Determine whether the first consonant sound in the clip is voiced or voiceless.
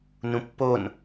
voiced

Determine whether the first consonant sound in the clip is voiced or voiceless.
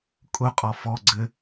voiceless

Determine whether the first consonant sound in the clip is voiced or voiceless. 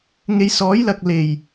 voiced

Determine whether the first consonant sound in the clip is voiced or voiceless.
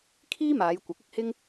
voiceless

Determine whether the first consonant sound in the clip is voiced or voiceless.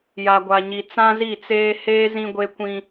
voiced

